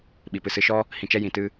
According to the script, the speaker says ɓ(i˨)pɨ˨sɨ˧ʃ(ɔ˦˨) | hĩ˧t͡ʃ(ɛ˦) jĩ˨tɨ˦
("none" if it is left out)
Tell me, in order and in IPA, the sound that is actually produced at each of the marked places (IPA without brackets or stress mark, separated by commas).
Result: i˨, ɔ˦, ɛ˦